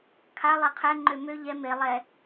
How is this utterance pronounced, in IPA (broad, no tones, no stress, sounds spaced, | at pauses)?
kʰ a lˠ ɛ qʰ ɛ ŋ͡ǃ ø m ø ʎ ɛ m e lˠ ɛ